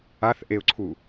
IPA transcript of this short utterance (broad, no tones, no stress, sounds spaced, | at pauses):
a θ ʔ e ʊ̯ ǀʰ u